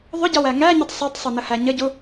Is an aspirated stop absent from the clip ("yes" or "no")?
yes